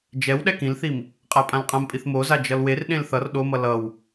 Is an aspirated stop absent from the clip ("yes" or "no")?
yes